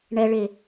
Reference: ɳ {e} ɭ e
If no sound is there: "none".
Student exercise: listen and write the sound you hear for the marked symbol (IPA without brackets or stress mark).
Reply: ɛ